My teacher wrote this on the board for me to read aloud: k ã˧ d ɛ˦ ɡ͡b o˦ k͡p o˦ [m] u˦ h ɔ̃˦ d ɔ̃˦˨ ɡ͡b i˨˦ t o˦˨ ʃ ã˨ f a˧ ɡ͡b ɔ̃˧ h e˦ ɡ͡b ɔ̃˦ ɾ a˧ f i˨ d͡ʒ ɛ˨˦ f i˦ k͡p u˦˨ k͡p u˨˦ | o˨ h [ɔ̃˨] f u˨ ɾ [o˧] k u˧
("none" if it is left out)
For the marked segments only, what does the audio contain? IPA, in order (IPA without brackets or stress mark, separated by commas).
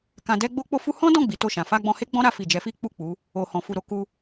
f, ɔ̃˨, o˧